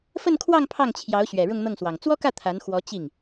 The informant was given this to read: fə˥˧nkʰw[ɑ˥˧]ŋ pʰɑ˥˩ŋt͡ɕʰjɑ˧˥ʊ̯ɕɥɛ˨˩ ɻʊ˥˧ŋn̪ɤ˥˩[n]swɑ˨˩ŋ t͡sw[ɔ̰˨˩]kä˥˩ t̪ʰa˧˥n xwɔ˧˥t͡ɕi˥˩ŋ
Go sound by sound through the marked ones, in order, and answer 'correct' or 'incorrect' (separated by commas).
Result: correct, incorrect, incorrect